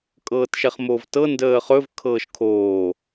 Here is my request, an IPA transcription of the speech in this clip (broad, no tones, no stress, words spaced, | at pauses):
kʼɤːtʃɛχmoːvtɤ ndəːχɵv kʰɤːʃkʰoː